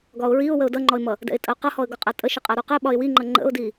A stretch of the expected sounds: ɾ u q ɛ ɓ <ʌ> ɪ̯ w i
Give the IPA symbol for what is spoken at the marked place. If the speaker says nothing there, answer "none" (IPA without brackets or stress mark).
ɒ